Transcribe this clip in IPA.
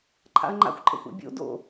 ǃʰ a̰ ɐ̯ ŋ͡ǃ a̰ xʷ ǃʼ ə̰ xʷ a̰ bʲ o̰ d o̰

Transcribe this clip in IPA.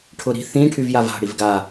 ʈʰ ʊ ɾ i̤ θ ĩ ʈʰ y v j a v a̤ ɽ i v ɡ a

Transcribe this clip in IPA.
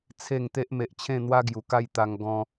t͡sʰ e˥˧ ŋ t̪ e˦ ʔ m e˨ ʔ t͡ɕʰ ẽ˥˧ n̪ w a˦ ɡ j u˨˩ k a˥˧ j t̪ a˧ ŋ ɡ ɔ̃˧

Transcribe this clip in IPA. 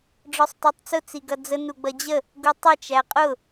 ɖ͡ʐ ɔ sˤ t æ tˤ t͡s ʊ t͡s i ɡ ʌ d͡z ə n u ɡ͡b ʌ d͡ʑ ə | ɡ u tˤ ʌ t͡ʃ æ qʼ ʊ

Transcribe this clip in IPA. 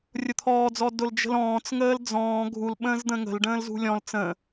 rʲ ʊ t̪ʰ ɔː d͡z ɔ d ʊ l d͡ʒ ə̤ l ɔ̃ː t͡s ŋ əː l d͡z ɔ̃ː ɡʱ u l ɓ ə̃ː z d̪ ə̃ ŋ ə̤ l ɖ ə̃ː l z ṳ lʲ ɔ̃ l t͡s ə̃

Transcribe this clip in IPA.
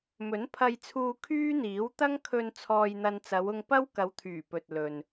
m ɵ˨˥ n pʰ ɐ˧ j t͡sʰ uː˧ kʰ yː˥ n̪ iː˨˥ w t̪ ɐ˥ ŋ kʰ ɵ˧ n t͡sʰ ɔː˧ j n̪ ɐ˧ n t͡s ɐ˨˧ w ʊ˧ ŋ p ɐ˥ w k ɐ˨˧ w t̪ʰ yː˨˩ p ɵ˨ t̚ l ɵ˨ n

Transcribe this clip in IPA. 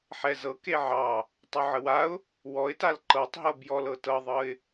ħ ɛ z ɤ k e ʕ ɑ | tˤ u ʕ ə w a ʊ̯ | w ɔ ɪ̯ t a l ǃ ɤ tˤ ɦ ɤ b j ɔ l ɤ t ɤ ðˤ ɤ ɪ̯

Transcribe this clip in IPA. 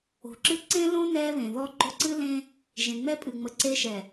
o̤˨˦ ǁ ɨ˦ ǀ ẽ˦ l õ˦ n ɛ˦ β ẽ˨ ð ɔ˦ ɡ͡ǃ o˦ ǀ ɨ˦ l ẽ˦ | ʒ ẽ˨ ŋ͡m ɛ˦ pʼ ɨ˨ ŋ͡m ə˨ ǀ e˦ ʃ ɛ˨

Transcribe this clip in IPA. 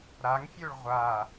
ɾ a ŋ fʲ ø ɭ ʁʷ a

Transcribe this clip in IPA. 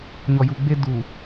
ɲ ɔ˨ j u˨ ɡ͡b e˦ d u˨

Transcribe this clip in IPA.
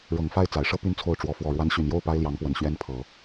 ɻ ɤ˨˩ ŋ f a˥˩ ɪ̯ t͡s a˨˩ ɪ̯ ʂ ɤ˥ p y˥ n t͡sʰ o˥˩ ʊ̯ ʈ͡ʂ w ɔ˧˥ f w ɔ˨˩ ɻ w a˧˥ n ɕ y˨˩ n j o˥˩ ʊ̯ p a˥ ɪ̯ l j ɑ˧˥ ŋ p w ə˨˩ n ɕ ɥ ɛ˥ n pʰ ɤ˨˩˦

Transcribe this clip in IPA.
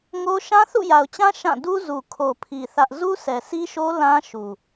ŋ o˦ ʃ ã˦ θ ṵ˦˨ j a˨ ʊ̯ t͡ɕ ã˦ ʃ ã˦˨ d u˦ z u˨ kʰ o˨ pʰ i˨ θ ä˦ ʔ z u˦ s ɛ˨ s i˦ ʃ o˦ l ã˦ ʃ u˨

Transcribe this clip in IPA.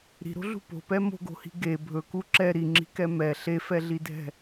ɾ i̤ ɾ o̤ ɮ ṳ p o̤ p ɛ m o̤ ɡ o̤ h i̤ ɡ e bʱ ɵ k u ǁ ɛ ɾ i ŋ͡ǁ i̤ k ɛ m ɛ ɬ e f ɛ ɮ i dʱ ɛ̤

